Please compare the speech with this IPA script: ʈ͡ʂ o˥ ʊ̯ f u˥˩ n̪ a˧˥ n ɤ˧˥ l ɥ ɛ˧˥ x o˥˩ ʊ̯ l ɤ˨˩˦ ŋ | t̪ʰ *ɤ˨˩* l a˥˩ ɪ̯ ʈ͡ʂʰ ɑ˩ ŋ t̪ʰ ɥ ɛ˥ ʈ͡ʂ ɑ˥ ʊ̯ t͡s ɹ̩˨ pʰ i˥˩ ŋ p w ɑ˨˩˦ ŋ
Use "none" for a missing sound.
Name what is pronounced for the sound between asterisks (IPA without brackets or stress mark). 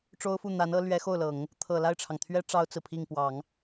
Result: ɤ˨˩